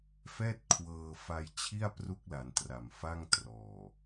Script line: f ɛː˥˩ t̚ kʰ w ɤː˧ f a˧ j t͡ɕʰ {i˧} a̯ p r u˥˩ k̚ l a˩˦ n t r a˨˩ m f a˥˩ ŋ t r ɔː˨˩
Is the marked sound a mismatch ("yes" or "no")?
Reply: yes